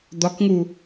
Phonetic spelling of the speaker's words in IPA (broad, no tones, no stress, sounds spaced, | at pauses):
d̪ ɒ k ŋ u